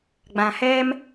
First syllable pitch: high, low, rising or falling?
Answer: low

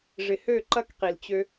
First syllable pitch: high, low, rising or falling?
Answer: low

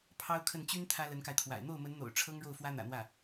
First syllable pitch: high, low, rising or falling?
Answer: high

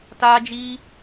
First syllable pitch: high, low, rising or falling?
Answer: high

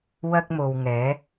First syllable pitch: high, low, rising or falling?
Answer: high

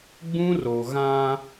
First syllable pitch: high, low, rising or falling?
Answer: high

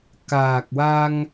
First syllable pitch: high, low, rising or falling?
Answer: low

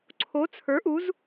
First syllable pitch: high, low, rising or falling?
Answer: rising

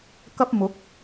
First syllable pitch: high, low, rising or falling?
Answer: high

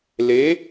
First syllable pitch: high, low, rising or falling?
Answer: rising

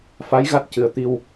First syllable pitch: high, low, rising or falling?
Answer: rising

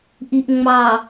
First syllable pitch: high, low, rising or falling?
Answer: low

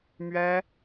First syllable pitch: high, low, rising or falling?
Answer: high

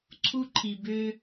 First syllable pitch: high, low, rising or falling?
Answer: high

